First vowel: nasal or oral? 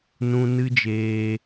nasal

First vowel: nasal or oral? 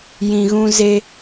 nasal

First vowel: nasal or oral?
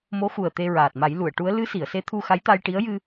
oral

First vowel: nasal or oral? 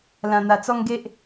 nasal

